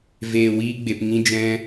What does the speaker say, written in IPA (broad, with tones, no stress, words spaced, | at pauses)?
veː˧wiː˦ɡ͡be˧p ŋĩ˦d͡ʒɛ̃˦